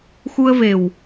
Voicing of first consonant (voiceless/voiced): voiceless